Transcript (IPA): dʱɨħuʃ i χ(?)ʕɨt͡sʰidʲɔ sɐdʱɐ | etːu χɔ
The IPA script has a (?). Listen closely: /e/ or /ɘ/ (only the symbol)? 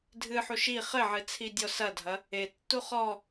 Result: ɘ